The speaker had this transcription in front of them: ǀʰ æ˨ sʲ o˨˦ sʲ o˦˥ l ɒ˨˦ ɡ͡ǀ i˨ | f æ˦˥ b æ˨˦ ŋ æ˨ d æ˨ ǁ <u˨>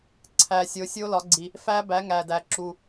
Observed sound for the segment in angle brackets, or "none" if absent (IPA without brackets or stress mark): u˨